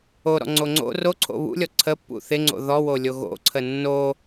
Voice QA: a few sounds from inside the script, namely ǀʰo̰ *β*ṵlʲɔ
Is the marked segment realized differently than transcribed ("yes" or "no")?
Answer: no